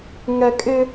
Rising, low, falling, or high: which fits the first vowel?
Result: low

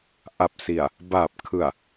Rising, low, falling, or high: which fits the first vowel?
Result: low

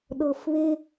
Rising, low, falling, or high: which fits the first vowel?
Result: low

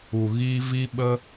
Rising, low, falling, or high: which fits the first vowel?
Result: low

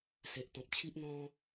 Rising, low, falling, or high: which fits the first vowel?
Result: low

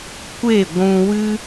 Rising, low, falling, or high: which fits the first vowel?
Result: falling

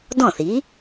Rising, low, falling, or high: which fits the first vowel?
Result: falling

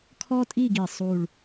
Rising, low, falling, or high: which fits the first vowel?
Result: high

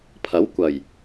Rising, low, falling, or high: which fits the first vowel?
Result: rising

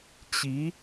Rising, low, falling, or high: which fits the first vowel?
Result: rising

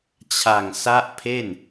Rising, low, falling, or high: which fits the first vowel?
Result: low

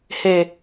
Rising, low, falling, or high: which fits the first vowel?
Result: low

